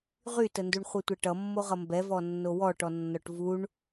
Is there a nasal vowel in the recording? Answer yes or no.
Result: no